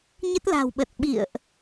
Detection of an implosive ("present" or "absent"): present